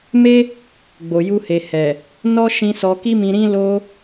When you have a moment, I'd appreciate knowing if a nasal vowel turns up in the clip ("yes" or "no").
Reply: yes